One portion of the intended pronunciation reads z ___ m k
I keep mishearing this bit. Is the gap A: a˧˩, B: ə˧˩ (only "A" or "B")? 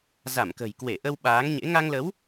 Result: A